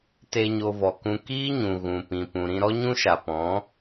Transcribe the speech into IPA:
t e˧ ɲ o˧ v ɔ˨ k ũ˧ k iː˦ ɲ ũ˨ ɣ ũ˨ p ĩ˨ p ũ˨ ɾ ĩ˧ ɾ ɔ˦ ɲ ũ˦ ʃ a˨ p ɔ̃˨˦

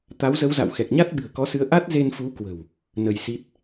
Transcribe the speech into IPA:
t̪ a˨˦ w z ə˨˦ w z a̰˧˨ w x ɛ˨˩ k̚ ɲ a˦˥ t̚ ɓ ɨ̤˨˩ ə̯ k ɔ˨˦ s ɨ˨˦ ə̯ ʔ a˦˥ t̚ z e˧ n f u˨˦ k w ə̤˨˩ w | n ə˧ j s i˦˥ t̚

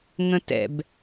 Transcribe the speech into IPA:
ŋ ə̃ t ɛ̰ b

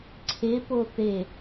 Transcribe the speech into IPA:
ǀʰ e p o θ e

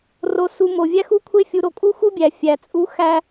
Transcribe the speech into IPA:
r o˧ s u˧ m o˨ vʲ æ˦ x u˦ kʷʰ e˦ fʲ u˧ ɾ o˧ kʼ u˦ x u˦ bʲ æ˨ fʲ æ˨ t͡sʼ u˧ x æ˧

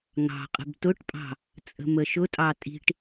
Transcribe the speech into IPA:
ŋ ɑ̤ qʼ ə̤ b t ʊ ʈ pʼ ɑ̤ | t͡sʼ ə̤ m ə ʃ ʊ tʼ ɑ tʼ i̤ ʈ

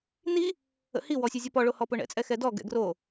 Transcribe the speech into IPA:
n i | ə̰ h i w ɔ sʲ u zʲ ɔ p ɔ ɭ o h ɔ p ʊ ɳ ɛ̰ t͡sʼ ɛ x ɛ d ɔ ɡ ɛ̰ ɡ r o

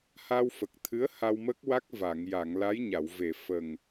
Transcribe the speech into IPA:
h a˧ w f ə˨˩ k̚ t̪ʰ ɨ˧˥ ə̯ h a˧ w m ə˦˥ k̚ w a˦˥ k̚ v a˨˩˨ ŋ j a˨˩˨ ŋ l a˧˥ j ɲ a˨˩˨ w v e˨˩˨ f ə˨˩ ŋ

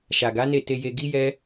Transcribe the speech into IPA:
ʃ a˨ ɡ a˨˦ n e˦˨ t e˧ j e˧ ɡ i˦ j ɛ˦

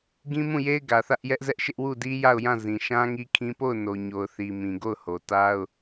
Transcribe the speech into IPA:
ɡ ĩ˦ m ũ˦˨ j e˦ ɪ̯ ɡ ä˨ θ ä˦ ʔ j ɛ˦ ʔ z ɛ˦ ʔ ʃ ɪ˦ ʔ w u˦˨ d i˦ j a˦˨ ʊ̯ j ã˦˨ z ĩ˨ ʃ ã˦ ŋ i˦ kʰ ĩ˦ p o˦˨ ʊ̯ n o˨ ɲ o˨ ʊ̯ θ i˨ m ĩ˨ ɡ o˦˨ ʊ̯ h o˨ t a˦ ʊ̯

